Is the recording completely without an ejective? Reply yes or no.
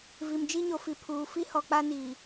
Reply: yes